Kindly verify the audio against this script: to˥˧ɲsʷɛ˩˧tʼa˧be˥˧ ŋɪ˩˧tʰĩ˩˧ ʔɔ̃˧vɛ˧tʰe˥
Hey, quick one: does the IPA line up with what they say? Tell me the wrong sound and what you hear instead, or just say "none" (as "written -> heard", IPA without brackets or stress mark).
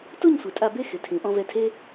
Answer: ŋ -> x